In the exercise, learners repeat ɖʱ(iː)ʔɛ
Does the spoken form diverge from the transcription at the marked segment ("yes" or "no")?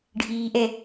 no